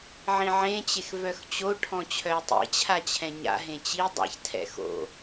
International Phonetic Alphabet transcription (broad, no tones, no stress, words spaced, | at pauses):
ʕĩʕẽt͡ɕex vœxt͡ɕo ʈʰɔ̃t͡ɕʰœɪ̯tˤḭt͡ɕʰa t͡ɕʰɛ̃ɲa̰ ɦẽt͡ɕi dˤa̰çtʰɛ̰ xo̰